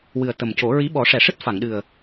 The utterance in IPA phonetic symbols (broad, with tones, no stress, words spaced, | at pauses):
wɨ˨˩ə̯t̪ə˨˩mco˨˩˦ ɹi˧˥ɓɔ˨˩˦ʂɛ˨˩˨ʂɨ˦˥t̚ fa˨˩˨ŋɗɨ˨˩ə̯